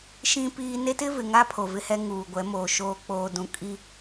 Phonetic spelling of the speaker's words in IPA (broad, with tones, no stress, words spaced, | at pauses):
ʃĩ˦piː˦ ne˦tɪ˦vɪ˨ ŋa˦pʰo˨ vɪ˦hɛ˦ ŋuː˨ɡʷɛ˨˦moː˨ ʃoː˨k͡poː˨dũ˨ kʼi˦